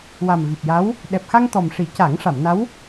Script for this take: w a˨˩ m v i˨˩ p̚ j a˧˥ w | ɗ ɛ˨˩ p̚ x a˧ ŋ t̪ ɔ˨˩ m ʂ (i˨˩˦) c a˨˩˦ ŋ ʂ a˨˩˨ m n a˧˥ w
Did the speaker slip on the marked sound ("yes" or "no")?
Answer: no